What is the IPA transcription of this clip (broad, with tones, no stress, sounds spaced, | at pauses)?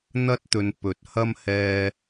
n̪ ɐ˥ t̚ t̪ ɵ˨ n p ɵ˨˥ t̚ h ɐ˥ m h ɛː˥